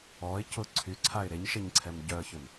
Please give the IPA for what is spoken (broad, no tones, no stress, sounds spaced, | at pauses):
ɔ ɪ̯ c ʊ ǀʰ y ǀʰ a ɪ̯ ɾ e ɲ ʃ e ɲ ǀʰ ɛ m ɟ œ ə̯ ç ʏ m